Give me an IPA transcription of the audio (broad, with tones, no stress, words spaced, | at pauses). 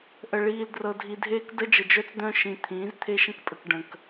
ʔə˨ɭiː˨ldrɤ˨dʱi˨ dʱeː˦kdə˦d͡ʒə˨ d͡ʒœ˦t͡sd̪œ̃˦ʃĩ˨ t̪ʰĩː˨˦zt̪ʰe˦ʃə̃˦kpʼə˨k ɖə̃˨k